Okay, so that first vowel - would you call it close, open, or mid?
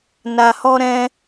open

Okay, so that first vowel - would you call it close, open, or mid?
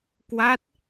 open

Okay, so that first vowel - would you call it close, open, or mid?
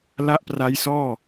open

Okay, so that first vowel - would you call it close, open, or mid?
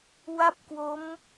open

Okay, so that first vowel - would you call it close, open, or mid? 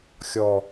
mid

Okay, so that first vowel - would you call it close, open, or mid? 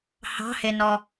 open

